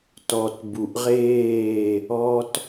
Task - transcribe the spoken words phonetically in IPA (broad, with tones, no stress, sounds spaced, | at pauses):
t ɔ˨ t b u˨ ʔ ʁ eː˦˨ | ɔ˦ t